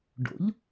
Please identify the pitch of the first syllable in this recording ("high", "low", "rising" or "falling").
rising